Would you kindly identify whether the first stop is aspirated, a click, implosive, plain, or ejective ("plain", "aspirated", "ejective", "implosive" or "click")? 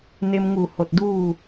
plain